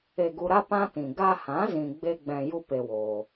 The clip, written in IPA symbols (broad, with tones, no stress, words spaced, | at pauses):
e˧ɡu˧ ɾa˦ pã˦tĩ˨ ɡa˧hã˨˦zĩ˨ ɡ͡be˦ɡ͡bɛ̃˧ju˦ pe˦woː˧